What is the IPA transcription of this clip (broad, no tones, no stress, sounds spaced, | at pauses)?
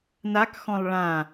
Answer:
n a k x ɔ̃ lˠ ɭ ã